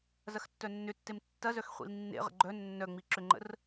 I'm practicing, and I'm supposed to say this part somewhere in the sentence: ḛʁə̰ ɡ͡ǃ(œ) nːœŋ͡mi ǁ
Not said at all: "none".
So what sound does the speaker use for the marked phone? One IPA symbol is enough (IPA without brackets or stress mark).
œ